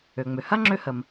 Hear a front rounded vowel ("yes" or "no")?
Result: yes